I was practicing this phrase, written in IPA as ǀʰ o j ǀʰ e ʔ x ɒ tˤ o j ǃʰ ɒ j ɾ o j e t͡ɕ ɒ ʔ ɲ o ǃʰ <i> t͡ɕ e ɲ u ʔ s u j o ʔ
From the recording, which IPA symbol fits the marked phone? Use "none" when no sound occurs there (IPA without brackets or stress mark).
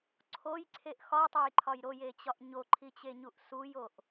i